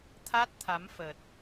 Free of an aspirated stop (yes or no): no